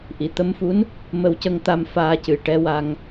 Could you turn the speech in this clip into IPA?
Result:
ʔ i˨˩˨ t̪ ə˧ m f u˧˥ n | m ə˧ w c ə˧ ŋ t̪ a˧ m f aː˧ c ɨ˨˩ ʈ ɛ˧ w a˧ ŋ

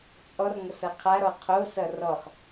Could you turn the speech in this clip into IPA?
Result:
t͡sʼ ɔ r ŋ ʌ s ʌ qʰ a ɾ ɔ qʰ o s ʌ r ɔ χ

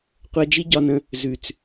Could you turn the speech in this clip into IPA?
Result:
qʷ ɜ˧ d͡ʒ i˦ ɟ ɒ˧ n ə̃˧ | z ʉ˨ t͡s

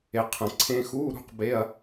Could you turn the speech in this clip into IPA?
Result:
e˩ qʰ ə̃˩ ǀʰ ẽ˧˥˧ x u˧˥˧ ɾ ṳ˧˥˧ q b e˧˥˧ ɐ̯

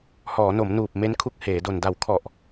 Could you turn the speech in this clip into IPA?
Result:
h ɔː˩˦ n o˩˦ m n uː˨˩ p̚ m e˦˥ n kʰ u˦˥ k̚ h eː˩˦ d o˨˩ n d a˩˦ w kʰ ɔ˨˩ ʔ

